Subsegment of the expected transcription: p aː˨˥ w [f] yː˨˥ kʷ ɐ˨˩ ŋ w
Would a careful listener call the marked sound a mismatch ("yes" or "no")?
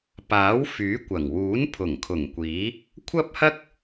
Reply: no